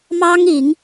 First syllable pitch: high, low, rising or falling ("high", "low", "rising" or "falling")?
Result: high